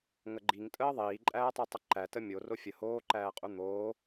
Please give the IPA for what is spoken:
ŋəɡ͡ǃiŋtʼəː ðˤiːǃʼæːtˤu tˤəǃætə mʲoro fʲə hoːǃæːqʼu n̪oː

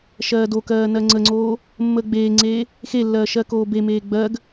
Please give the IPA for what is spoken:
ʃɜːdokɜː nɜŋ͡ǀəŋ͡ǀoː | mːəːɡ͡beːŋ͡ǀeː | xelːɜː ʃɜkoːbemeː ɡ͡bɜɡ

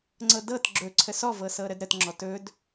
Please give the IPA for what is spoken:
ŋ͡ǀɤdɤt ɡ͡ǁɵ ǀʰəsɔvɤsɤ ɾədɾətŋ͡ǁɔ tɵd

